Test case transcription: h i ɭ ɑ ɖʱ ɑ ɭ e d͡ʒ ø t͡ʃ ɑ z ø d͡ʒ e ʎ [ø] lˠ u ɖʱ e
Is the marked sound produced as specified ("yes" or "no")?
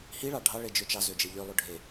yes